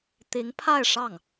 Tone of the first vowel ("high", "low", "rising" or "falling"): rising